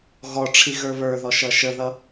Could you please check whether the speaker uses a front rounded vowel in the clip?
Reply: no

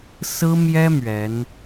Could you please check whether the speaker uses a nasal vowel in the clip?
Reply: no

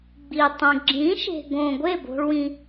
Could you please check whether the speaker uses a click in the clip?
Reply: yes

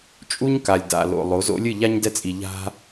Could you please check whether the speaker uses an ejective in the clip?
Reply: yes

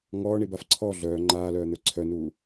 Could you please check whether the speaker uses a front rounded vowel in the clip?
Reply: yes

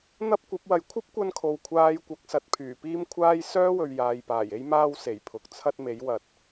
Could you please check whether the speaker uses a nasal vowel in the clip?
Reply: no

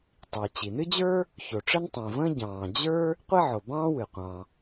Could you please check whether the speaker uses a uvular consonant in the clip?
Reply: yes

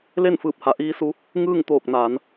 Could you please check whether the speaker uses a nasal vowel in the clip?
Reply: no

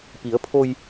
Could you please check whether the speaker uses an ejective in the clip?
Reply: no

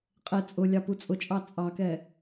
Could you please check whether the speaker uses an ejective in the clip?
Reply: yes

